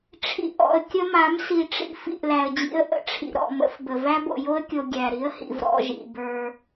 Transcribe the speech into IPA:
ʈ͡ʂʰḭ˨ʔɔ̰˨ə̯ kʲə˦ma˨˦m si˨ʈ͡ʂḭ˦ fḭ˨ʔlæ˨ə̯d͡ʑḭ˦ə̯ ʔə̰˦ʈ͡ʂʰḭ˨ ɾɔ̰˨mə̰˦fbə˨ væ˦bo̰˨jo˦ə̯kʲo˨ ɡʲæ˨ɾi˦ə̯hḭ˨v ɾɔ̰˦ʒḭ˨bə˞˦

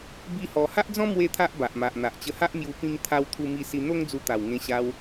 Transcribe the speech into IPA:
bi˦hɔ˧ ha˦ʔd͡zɔ̃˦ mwe˦t̪ʰa˦ʔ ba˨ʔma˨ʔ n̪a˨ʔt͡ɕə˧ha˦ʔmju˧ pĩ˧ŋ t̪ʰa˧w t̪ʰu˧mi˧si˧ n̪o˦ŋd͡zu˧t̪a˨˩w ŋẽ˧ɕa˧w

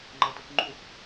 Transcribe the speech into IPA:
ŋ͡ǃʌtɯkŋ͡ǃux

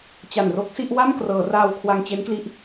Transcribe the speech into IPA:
t͡ɕa˨˩nro˦˥k̚si˥˩ʔ wa˥˩m krɤː˩˦raː˧w kʰwa˧ŋt͡ɕe˦˥nkli˦˥ʔ

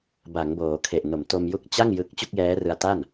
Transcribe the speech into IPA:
ba˩˦ŋboː˩˦kʰe˨˩ʔ no˩˦mto˧m ju˥˩k̚ t͡ɕa˥˩ŋ jɯ˦˥k̚ t͡ɕu˥˩k̚jɛː˦˥rɯ˧a̯ ta˥˩n

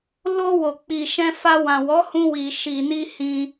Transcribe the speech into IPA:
lo˧ wo˨k͡pi˨ʃɛ̃˧fa˧ wã˨wɔ˨˦ hũ˧ wi˨ ʃi˨ni˧ hĩ˧

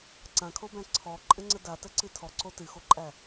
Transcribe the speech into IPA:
ǀãkʰobæ̃ ǀʰɔǃʼə̃ŋ͡ǀə datəǀɨ tʰɔǀo tɨxoǃʼæ

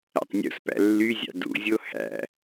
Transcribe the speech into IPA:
æ̰tˤnʲṵspæ̰ lːyzʲɑ̰ dṵzʲo hæ̰

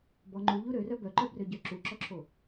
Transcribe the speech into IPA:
bɔ ŋ͡ǃuʎu ɾørœ bœǃœbrøɟœ ǁuǁɔǁʰo

